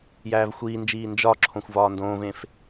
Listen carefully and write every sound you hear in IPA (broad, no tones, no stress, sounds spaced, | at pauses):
j æː v xʷ iː n d͡ʒ iː n d͡ʒ ɒ ǁʰ õ xʷ v ɒː n d õː v ẽ f